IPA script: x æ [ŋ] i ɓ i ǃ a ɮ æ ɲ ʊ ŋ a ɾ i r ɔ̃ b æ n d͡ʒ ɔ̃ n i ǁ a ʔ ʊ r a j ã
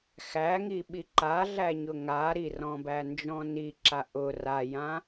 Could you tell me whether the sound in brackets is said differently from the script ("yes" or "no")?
no